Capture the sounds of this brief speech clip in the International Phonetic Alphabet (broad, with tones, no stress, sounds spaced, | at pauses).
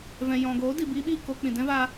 v ɛ̃˨ j ɔ̃˨ ɡ oː˨˦ d i˨ b iː˧ ɓ iː˦˨ k o˧ k͡p ĩ˨ d ɛ̃˦ v aː˧